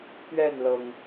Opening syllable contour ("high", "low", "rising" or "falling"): falling